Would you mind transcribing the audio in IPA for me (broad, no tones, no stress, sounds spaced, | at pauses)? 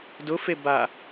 d ʊ f e b a